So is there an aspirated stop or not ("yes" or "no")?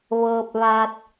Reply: no